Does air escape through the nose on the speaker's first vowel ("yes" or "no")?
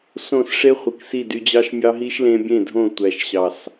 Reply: yes